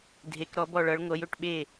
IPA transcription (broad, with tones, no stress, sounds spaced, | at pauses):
dʱ e˩˧ k ɾ ɔ˩˧ b ɔ˧˩ ɭ ʌ˩˧ ɭ ŋʷ ʌ˩˧ j ɵ˧˩ ʈ ɓ e˧˩